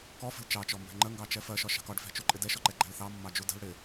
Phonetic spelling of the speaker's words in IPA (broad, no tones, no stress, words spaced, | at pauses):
kɔfə̤l t͡ʃɑt͡ʃɔmbæ̤ ŋ͡ǃəŋɡɑt͡ʃɛ fɜʃɒʃɑ̤k ɒɖfæ̤t͡ʃuǃʼɪ dɛʃɔǃɛɡ͡ǃæ̤l θɑmːɑd͡ʒu də̤l ɽɪ